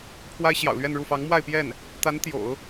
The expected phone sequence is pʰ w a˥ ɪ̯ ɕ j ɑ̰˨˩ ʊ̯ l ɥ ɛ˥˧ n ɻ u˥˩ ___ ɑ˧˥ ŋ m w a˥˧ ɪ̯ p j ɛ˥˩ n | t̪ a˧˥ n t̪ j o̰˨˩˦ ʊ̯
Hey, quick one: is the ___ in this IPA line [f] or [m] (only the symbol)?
f